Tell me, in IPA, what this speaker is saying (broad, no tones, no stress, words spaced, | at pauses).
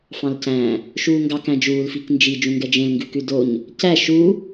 fɑ̃lcæ̃ | ʃuːŋɡɑk æ̃d͡ʒuːl fiknd͡ʒi d͡ʒũŋɡɛd͡ʒẽl ŋɡʉkʉdoɲ | cæ ʃu